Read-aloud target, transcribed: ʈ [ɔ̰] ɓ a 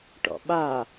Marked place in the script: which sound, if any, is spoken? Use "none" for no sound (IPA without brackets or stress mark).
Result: ɔ̰